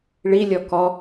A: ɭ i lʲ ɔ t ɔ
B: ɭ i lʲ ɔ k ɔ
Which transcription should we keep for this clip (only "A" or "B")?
B